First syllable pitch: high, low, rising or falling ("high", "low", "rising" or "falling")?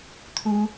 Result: high